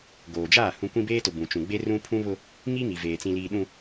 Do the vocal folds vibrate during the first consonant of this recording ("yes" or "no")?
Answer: yes